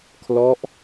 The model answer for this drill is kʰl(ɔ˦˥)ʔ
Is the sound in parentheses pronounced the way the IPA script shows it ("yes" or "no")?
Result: yes